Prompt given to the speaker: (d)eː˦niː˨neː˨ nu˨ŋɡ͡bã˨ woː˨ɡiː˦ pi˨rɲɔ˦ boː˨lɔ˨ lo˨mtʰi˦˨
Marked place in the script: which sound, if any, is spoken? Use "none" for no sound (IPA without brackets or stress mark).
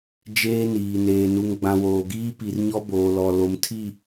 d͡ʒ